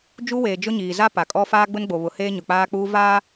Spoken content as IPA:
d͡ʒ u˦ w eː˨ d͡ʒ ʊ˦ ɲ iː˨ z a˦ p a˨ kʼ ɔ˦ f aː˦ ɡ͡b ʊ˦ n ɡ͡b o˨ β ʊ˨ h eː˦ ɲ ʊ˨ k͡p aː˦ k͡p uː˦ v aː˦

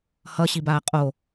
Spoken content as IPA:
h ʌ ɕ i b aː qʼ o

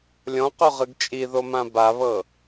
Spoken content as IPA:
lʲ ɔ̃ q o ʁ ɯ ɡ t͡ʃʼ i ð o m ã b a β ɤ

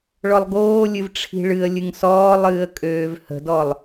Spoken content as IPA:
ɭ ɔ lˠ ɡ oː lʲ ɨ v ʈ͡ʂʰ i̤ ɭ ɨ ə̯ lʲ ɨ ŋ s ɔː lˠ ɨː ə̯ kʼ øː v h ə̤ d ɔ lˠ

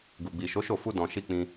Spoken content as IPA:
ɡ u˨ ɡ͡b i˨ ʃ o˨˦ ʃ o˦˨ f u˧ d ɔ̃˨ ʃ i˧ k͡p ĩ˧

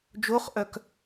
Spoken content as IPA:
d͡ʒ o χ ʔ œ k

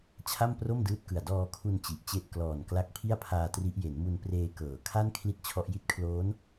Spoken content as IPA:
t͡ɕʰ a˥˩ m p r o˥˩ m d ɯː˦˥ t̚ k ɯ˨˩ a̯ d ɔː˧ kʰ u˧ n t͡ɕ i˨˩ ʔ t͡ɕ e˥˩ ʔ k l ɔː˨˩ n k l a˦˥ k̚ pʰ i˥˩ a̯ pʰ aː˧ t r i˦˥ ʔ j e˩˦ n m u˧ n p r eː˧ k ɤː˩˦ kʰ a˥˩ n kʰ l i˥˩ t̚ t͡ɕʰ ɔ˦˥ ʔ j i˦˥ t̚ kʰ l oː˦˥ n

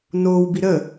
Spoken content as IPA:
n oː w b i ɾ ə

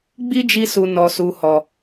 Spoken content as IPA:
ɡ͡b i˦ d͡ʒ i˧ s u˨ n ɔ˨ s u˨ h ɔ˨

